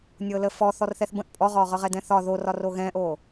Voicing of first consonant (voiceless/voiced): voiced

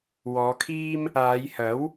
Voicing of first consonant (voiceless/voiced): voiced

